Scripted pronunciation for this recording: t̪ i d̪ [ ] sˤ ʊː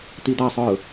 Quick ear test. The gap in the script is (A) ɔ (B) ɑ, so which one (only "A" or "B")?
B